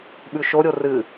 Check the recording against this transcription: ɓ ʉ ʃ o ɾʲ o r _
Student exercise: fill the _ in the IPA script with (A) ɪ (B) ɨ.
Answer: B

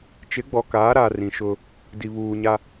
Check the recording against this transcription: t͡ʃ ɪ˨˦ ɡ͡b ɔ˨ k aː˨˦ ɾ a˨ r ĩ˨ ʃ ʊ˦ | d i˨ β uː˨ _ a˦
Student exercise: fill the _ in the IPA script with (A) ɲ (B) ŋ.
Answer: A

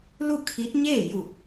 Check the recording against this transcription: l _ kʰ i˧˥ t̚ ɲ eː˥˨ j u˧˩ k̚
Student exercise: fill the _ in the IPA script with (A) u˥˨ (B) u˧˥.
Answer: A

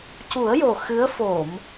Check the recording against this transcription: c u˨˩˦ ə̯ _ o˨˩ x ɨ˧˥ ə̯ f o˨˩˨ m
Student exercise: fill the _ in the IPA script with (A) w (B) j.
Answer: B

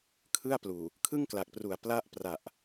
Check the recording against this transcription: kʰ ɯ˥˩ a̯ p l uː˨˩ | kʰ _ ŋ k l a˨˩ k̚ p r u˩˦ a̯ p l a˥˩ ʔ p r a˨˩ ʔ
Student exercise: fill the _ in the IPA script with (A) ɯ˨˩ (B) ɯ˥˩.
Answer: B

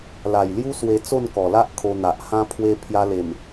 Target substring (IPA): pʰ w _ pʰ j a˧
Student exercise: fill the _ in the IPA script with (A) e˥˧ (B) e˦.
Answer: B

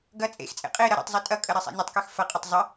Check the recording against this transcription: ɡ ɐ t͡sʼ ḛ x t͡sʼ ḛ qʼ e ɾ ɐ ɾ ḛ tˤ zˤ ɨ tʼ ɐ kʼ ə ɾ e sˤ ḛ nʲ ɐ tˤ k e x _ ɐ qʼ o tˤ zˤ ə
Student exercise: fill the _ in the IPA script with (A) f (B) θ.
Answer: A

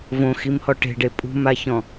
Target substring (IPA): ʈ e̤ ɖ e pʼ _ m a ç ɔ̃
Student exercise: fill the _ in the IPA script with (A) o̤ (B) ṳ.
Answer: B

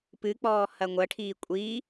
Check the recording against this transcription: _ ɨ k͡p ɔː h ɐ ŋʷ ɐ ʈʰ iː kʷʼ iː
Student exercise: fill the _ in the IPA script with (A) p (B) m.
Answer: A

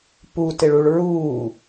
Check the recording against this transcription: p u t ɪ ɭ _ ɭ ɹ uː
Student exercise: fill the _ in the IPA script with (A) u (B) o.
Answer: A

